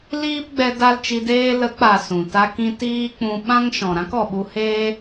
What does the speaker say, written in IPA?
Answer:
l iː˦ p ɡ͡b ɛ˧ d a˦ l t͡ʃ i˧ d eː˦ l ə˨˦ k͡p a˨ s ũ˨ t a˦ k ĩ˦ t iː˦ k͡p ũ˧ ɓ ã˦ ŋ ʃ ɔ̃˨ ɾ ã˦ k ɔ˨ ɓ u˧ h e˦

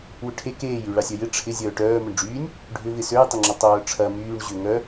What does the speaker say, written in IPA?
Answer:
w ʏ ʈʰ e k eː j y ɭ a sʲ œ j ɪ ʈ͡ʂʰ ɪ zʲ œː ʈ œː m ʊ ɳ ɖ͡ʐ yː nʲ | ɖʱ ʏ v ɪ s ø j tˤ ɪ ŋ͡ǁ ʊ tˤ œː ʈ͡ʂʰ ɐ m yː ɳ ʑ ʏ ŋ œ

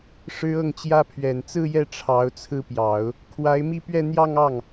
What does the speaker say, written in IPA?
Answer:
ʂ ɻ̩˥ ɤ˥˩ ŋ t͡ɕ j ä˥ pʰ ɥ ɛ˨˩ n t͡s ɹ̩˥˧ j ɛ˥˩ ʈ͡ʂʰ ɑ˧˥ ʊ̯ t͡sʰ ɹ̩˥ p j ɑ˨˩˦ ʊ̯ | kʰ w a˧˥ ɪ̯ m i˥˧ p ɥ ɛ˥˧ n̪ j ɑ˥˧ ŋ ɑ˥˩ ŋ

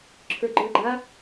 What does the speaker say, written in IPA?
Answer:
ǁʰ ə˞ ɡ͡ǃ ə˞ ɡ͡ǃ a

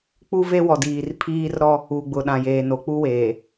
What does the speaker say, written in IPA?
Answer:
k͡p u˦ v e˦ w ɔ˨ d iː˨ r pʰ iː˦ r ɾ ɔ˦ | u˨ ɡ͡b ʊ˨ ɗ ã˨ j eː˨ n o˨ k͡p u˦ w eː˨

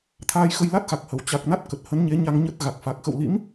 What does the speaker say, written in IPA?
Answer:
t̪ʰ aː˧ j x ə˧ j l a˦˥ t̚ x a˨˩ k̚ h ə˧˩ w t͡ɕ a˨˩ k̚ n a˦˥ t̚ k ə˨˩ t̚ h ə˨˦ n ɲ e˨˦ ɲ a˧ ŋ ɲ ə˦˥ t̚ ɣ a˨˩ k̚ f a˨˩ k̚ x ə̰˧˨ w l ḭ˧˥ m

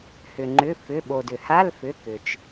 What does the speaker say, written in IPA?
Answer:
h ʏ˩ ŋ͡ǃ ʏ˩˧˩ f ʏ˩˧˩ ɓ o˩ d ʏ˩ h a˧˥˧ l f ʏ˩˧˩ k ʏ˩ t͡ʃ

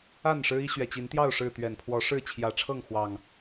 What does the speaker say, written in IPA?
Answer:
a˥˨ n ʂ ɻ̩˦ i˦ ɕ ɥ ɛ˨˩ t͡ɕ i˨˦ n t̪ j ɑ˥˨ ʊ̯ ʂ ɻ̩˥˨ t̪ ɥ ɛ˨˩ n pʰ w ɔ˨˦ ʂ ɻ̩˥˨ t͡ɕʰ j ä˨˦ ʈ͡ʂʰ ɤ˥˨ ŋ x w ɑ˨˩ ŋ

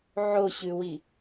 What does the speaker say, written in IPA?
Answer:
ʕ o ɕ ʉ w i

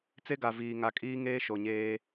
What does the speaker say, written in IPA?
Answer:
t͡s e˦ ɡ a˨ v iː˨ ŋ a˨ kʼ iː˦ ŋ eː˦ ʃ o˨ ɲ eː˦

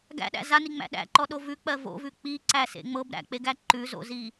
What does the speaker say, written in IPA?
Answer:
ɡ æ̰ ɗ æ̰ z a n i ŋ͡m æ̰ ɗ æ̰ ǃ ɔ ɗ o v ʉ k͡p ɜ v o̰ v ʉ k͡p i ǀ æ s ḛ ŋ͡m ɤ b ɾ æ̰ k͡p e ɡ æ ǃ ʉ z o̰ z i

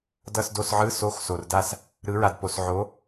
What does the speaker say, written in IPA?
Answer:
d ʌ˦˨ s d o˦˨ s ʕ ɯ˧˥˧ s o˧˥˧ x s o˨ r d a˦˨ s | ɾ ɯ˨˥ ɹ a˨ d p o˨ s ʕ o˨˥

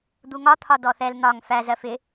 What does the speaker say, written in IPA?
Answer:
d̪ u ŋ ɒ t̪ʰ ɒ d ɔ θ ɛ l n̪ ɒ ŋ f æ z ɜ f ɪ

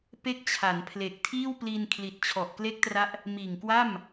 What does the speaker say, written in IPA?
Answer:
p e˥˩ k̚ t͡ɕʰ a˩˦ n pʰ l e˨˩ k̚ tʰ iː˥˩ w p l iː˧ n kʰ l i˨˩ t̚ t͡ɕʰ ɔ˨˩ ʔ k l e˦˥ k̚ t r a˦˥ ʔ | m iː˨˩ ŋ k w a˥˩ m

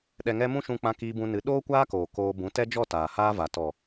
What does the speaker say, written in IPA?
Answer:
ɗ ɛ˨ ŋ ɛ˧ m ũ˦ ʃ ũ˧ k͡p ã˧ k iː˧ b ũ˧ n ɨ˨˦ ɗ oː˦ kʷ aː˦ k oː˨ k oː˧ b ũ˨˦ t ɛ˦ d͡ʒ ɔ˦˨ t aː˨ h aː˦ v a˨ t ɔ˨

